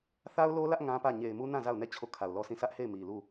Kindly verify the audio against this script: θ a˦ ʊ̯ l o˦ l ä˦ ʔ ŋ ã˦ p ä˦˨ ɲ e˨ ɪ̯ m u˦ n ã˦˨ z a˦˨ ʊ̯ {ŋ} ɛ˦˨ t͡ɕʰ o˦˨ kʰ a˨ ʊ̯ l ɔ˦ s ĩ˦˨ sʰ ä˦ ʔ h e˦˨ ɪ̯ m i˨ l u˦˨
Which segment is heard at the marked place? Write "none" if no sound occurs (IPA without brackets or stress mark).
n